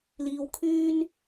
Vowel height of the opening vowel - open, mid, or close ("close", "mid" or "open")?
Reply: close